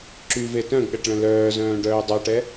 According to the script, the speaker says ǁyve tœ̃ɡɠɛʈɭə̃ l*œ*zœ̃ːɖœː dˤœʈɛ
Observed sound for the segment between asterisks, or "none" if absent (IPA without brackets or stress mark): œː